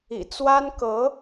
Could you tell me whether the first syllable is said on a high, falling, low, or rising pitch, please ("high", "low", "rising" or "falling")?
low